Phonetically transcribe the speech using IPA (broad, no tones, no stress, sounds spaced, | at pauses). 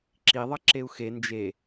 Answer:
ǁ i ðˤ ʌ ǁ e u̯ x e n d͡ʒ e